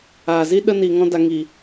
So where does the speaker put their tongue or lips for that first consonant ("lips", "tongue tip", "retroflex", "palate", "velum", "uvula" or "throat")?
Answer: tongue tip